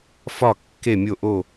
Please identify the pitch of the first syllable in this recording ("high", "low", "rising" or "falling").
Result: falling